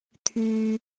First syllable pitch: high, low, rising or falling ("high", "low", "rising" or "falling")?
low